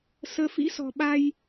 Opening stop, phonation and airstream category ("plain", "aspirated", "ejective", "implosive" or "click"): implosive